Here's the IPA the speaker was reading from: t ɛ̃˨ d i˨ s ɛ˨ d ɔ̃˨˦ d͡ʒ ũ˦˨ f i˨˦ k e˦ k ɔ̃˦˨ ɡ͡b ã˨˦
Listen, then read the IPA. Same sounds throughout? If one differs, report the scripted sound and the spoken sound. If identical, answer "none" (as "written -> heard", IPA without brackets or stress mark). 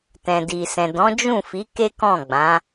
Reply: ɛ˨ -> ɛ̃˨